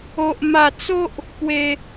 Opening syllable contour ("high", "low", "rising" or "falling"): high